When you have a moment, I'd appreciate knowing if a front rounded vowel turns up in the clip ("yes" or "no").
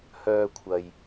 yes